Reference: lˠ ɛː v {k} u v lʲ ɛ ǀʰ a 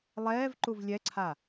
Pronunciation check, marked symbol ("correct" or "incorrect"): incorrect